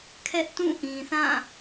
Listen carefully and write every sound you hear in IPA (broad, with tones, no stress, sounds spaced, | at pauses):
kʰ ɛ˦ ʔ t ũ˦˨ ʔ ĩ˨ θ ã˦˨